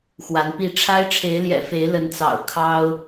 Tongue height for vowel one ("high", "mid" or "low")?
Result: low